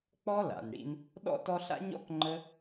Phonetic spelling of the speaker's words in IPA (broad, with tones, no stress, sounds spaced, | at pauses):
k͡p ɔ˦ l a̰˨ n ɽ ḭ˧ n | ɗ ɔ̰˦ t ɔ˧ ɬ a̰˦ ɲ ɔ̰˦ k ŋ͡ǃ ə˧